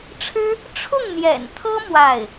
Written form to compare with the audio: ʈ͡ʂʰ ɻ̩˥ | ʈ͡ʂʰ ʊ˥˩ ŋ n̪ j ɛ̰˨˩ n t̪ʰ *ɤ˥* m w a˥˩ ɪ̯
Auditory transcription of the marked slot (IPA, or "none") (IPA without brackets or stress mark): ɤ˥